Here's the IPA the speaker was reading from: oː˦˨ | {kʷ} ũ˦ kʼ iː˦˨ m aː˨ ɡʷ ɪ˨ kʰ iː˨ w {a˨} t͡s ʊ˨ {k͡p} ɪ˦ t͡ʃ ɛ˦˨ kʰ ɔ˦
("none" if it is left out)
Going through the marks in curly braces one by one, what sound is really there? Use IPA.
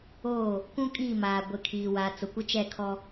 kʷ, a˨, kʷ

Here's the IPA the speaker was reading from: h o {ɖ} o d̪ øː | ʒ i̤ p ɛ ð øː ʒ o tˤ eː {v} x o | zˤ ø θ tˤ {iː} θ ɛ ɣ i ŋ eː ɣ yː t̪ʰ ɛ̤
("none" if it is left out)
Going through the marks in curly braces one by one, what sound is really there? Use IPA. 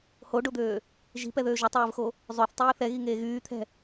ɖ, v, iː

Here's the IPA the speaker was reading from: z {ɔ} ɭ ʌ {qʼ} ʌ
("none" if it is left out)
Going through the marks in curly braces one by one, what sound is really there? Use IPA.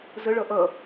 ə, ʔ

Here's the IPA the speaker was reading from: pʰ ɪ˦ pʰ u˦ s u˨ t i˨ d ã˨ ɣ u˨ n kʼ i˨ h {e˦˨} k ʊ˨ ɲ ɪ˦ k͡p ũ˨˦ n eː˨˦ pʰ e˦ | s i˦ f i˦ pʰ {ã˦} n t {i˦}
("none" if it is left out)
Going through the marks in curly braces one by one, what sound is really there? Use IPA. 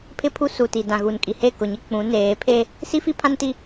e˦˨, ã˦, i˦

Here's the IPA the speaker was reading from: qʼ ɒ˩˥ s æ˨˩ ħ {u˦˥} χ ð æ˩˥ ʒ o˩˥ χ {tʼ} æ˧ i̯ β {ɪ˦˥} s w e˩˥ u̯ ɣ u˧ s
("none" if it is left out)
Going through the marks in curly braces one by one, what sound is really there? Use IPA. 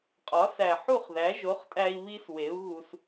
u˥˨, tʼ, i˦˥

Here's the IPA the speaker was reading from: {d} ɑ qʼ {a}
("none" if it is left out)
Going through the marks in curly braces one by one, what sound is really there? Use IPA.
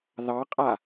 ð, a

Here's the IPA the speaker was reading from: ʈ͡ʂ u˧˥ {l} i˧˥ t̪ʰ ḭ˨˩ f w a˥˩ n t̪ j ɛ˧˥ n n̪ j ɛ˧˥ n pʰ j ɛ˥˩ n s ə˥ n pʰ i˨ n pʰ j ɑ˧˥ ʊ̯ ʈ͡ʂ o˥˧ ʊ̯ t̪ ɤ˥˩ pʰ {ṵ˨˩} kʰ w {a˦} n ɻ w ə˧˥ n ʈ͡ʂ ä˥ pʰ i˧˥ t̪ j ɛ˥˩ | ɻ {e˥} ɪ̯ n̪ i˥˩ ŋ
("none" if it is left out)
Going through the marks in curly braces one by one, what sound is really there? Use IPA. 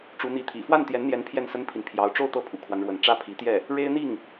n̪, ṵ˨˩, a˦, e˥

